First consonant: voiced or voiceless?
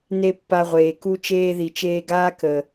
voiced